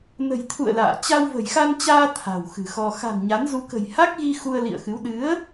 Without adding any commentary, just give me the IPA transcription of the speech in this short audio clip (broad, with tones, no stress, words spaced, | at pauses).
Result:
nə̤˨˩jt̪ʰṵ˧˨ə̯ la̰ː˧˨ t͡ɕa˧wvə̤˨˩jxa˧nt͡ɕaː˧ t̪ʰa̤˨˩wxɨ̤˨˩xɔ˧ xa̤˨˩n ɲa˨˦n zu˧ kə̤˨˩jha˦˥k̚ɣi˧ xu˧ə̯lḭ˧˨ə̯xɨ˨˦w ɗɨ˨˦ə̯